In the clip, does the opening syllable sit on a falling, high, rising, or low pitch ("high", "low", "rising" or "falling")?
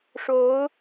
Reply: rising